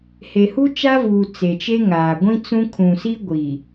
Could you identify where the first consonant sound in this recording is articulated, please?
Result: glottal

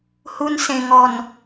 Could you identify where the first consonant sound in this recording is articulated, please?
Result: glottal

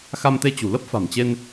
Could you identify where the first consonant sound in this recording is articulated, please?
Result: velar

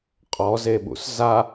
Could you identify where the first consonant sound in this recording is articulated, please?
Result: uvular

